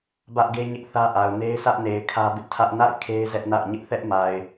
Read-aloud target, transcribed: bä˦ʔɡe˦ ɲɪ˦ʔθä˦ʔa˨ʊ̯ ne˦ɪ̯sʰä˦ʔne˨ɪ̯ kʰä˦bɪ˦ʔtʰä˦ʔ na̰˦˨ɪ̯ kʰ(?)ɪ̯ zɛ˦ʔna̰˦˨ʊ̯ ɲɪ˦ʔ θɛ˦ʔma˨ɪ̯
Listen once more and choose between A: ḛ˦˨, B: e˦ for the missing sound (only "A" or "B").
B